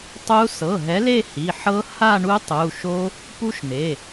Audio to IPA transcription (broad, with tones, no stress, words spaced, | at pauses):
tˤu˦˥ sɤ˩˧˩ɦɛ˨˦ le˥˧hi˩˧˩ħɤ˦˥ ha˥˧ɳu˦˥tˤu˩˧˩ ʃo˦˥ | pu˦˥ʃne˩˧˩